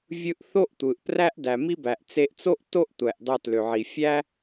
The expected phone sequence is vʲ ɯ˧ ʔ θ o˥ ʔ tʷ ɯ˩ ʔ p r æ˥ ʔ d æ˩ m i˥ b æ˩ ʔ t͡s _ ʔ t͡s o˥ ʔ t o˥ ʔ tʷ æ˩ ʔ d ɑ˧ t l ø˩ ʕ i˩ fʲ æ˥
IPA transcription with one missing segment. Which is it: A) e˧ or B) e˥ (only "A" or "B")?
A